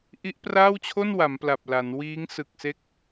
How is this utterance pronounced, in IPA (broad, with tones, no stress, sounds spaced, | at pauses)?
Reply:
ʔ i˦˥ ʔ p r aː˥˩ w t͡ɕʰ o˥˩ n w a˩˦ m p l a˨˩ p̚ l a˩˦ n w iː˦˥ ŋ s ɯ˨˩ k̚ s e˦˥ k̚